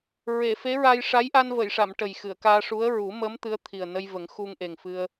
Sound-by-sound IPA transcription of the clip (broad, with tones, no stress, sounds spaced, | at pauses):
ɹ e˨˩˨ f e˧˥ ɹ a˧ j ʂ a˧˥ j ʔ a˧ n v ə˨˩˨ j ʂ a˨˩˨ m ʈ ə˨˩ j x ɨ˨˩˨ ə̯ k aː˧ ʂ u˧˥ ə̯ ɹ u˨˩˦ m ə˧˥ m t̪ ɨ˧˥ ə̯ t̪ʰ i˨˩ ə̯ n ə˧ j v ə˨˩˦ ŋ x u˧ ŋ ʔ e˨˩ ŋ f ɨ˧ ə̯